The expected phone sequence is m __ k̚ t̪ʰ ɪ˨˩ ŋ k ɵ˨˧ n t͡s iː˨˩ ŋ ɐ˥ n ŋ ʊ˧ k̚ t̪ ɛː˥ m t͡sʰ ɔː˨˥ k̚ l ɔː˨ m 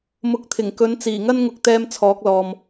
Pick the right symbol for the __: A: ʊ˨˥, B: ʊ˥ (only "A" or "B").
A